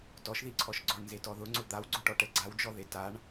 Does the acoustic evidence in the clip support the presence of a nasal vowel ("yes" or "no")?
no